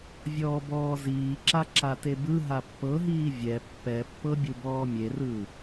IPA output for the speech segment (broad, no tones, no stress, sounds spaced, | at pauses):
vʲ ɔː b ɔː z iː ǁ a ǁ a t e b ɯ ɦ a pː ɤ ɦ iː vʲ ɛ pː ɛ pː ɤ bʲ u b ɔː mʲ e r ɯː